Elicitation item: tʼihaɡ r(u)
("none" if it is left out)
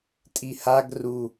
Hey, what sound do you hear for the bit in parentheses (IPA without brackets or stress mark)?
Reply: u